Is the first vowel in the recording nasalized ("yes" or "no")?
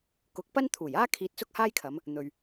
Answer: no